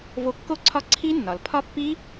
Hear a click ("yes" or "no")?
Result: yes